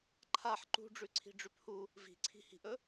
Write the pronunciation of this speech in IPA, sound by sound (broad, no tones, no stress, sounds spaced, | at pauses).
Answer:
ǃʰ a ħ ǃ ṳ ɖ͡ʐ ʉ ǀʰ i̤ ɖ͡ʐ ʉ p h u | v i̤ ǀʰ i̤ h i̤ ʔ ɵ